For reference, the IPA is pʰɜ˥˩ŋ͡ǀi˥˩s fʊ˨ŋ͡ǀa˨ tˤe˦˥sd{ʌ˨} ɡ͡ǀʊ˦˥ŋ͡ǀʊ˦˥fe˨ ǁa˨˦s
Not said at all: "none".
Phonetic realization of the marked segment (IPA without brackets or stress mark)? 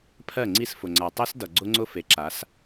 ʌ˨